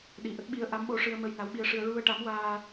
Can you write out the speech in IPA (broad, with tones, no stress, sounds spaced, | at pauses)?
ɗ i˨˩ ʔ ə˦˥ k̚ ɓ i˧˥ ə̯ ʔ a˧˥ m ɓ o˧ ʂ ɨ˧ ə̯ m ə˧ j n a˧˥ w ɓ i˧˥ ə̯ ʂ ɨ˧ ə̯ ɹ u˧ ə̯ ʈ a˧˥ m w aː˧